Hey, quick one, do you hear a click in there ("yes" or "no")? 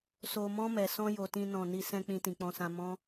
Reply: no